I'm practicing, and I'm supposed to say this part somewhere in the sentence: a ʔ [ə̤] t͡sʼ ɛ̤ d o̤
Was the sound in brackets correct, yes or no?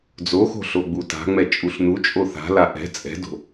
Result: no